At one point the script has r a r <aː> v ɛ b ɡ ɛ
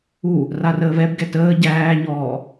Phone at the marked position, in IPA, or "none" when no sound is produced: əː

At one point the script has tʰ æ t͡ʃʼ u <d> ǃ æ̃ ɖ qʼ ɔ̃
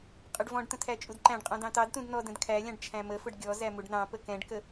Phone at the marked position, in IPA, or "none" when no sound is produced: d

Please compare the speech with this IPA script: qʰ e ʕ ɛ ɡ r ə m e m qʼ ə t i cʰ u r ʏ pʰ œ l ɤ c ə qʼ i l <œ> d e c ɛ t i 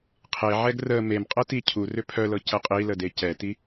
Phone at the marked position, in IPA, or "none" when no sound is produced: ə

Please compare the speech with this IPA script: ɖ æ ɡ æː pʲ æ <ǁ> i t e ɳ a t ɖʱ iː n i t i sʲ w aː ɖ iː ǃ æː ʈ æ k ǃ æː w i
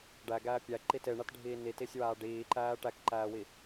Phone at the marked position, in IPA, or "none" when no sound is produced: ǃ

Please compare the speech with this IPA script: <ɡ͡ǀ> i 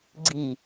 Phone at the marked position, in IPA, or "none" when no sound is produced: ɡ͡ǀ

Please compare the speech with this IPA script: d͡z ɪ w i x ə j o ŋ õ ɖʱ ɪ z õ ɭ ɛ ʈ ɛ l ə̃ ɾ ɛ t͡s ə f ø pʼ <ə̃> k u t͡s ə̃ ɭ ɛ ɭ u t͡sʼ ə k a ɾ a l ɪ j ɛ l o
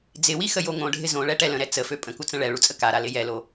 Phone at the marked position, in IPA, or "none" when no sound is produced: ə̃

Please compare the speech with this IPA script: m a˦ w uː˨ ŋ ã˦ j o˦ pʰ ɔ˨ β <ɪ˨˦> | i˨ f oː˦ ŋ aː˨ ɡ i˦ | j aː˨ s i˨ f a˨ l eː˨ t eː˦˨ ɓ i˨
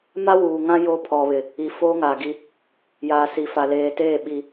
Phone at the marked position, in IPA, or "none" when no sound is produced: ɪ˨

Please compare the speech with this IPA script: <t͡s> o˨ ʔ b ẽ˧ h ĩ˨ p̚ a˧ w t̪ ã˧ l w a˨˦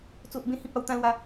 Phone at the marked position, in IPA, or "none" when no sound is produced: t͡s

